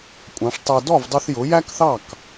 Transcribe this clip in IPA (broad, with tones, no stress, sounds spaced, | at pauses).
kʷʼ ɑ̃˩˥ ʂ tˤ ɜ˧ d ɔ˥˩ v dˤ u˧ θ j ʊ˩˥ j æ˥ k θ ɑ˥˩ k